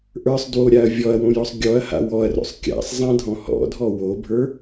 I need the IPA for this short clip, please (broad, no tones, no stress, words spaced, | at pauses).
ʔə˞sˤdwoɾʲaɐ̯ vʲɔɐ̯wõjɔsˤ ɡʲɔɐ̯ha̰ wɔɐ̯ro̰sˤ kʲa̰sˤzˤãdʱɔ̃ hɔ̰dʱɔ wobʱə˞